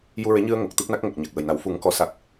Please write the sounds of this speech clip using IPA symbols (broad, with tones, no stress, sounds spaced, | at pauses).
j u˧ ɹ e˧˥ ɲ ɨ˧ ə̯ ŋ o˨˩ k̚ t̪ ɨ˦˥ p̚ n a˦˥ k̚ ŋ ə˨˩ k̚ ɲ a˨˩ k̚ w ə˨˩ j n a˨˩˦ w f u˨˩˦ ŋ k ɔ˨˩˦ s a˨˩ k̚